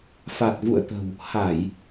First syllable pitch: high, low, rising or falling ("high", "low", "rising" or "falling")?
low